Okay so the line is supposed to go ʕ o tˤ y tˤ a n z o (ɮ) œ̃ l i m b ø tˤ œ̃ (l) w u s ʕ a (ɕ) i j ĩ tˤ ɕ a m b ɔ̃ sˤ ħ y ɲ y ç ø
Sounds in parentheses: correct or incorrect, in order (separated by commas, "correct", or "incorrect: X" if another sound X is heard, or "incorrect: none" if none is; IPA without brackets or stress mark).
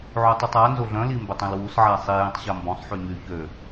correct, correct, incorrect: sˤ